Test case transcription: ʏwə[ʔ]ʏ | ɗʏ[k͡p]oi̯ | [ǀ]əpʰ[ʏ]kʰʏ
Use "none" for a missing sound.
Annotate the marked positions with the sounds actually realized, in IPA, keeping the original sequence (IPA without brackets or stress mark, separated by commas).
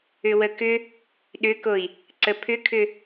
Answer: k, k, ǀ, ʏ